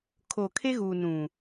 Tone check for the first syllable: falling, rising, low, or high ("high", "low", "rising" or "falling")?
low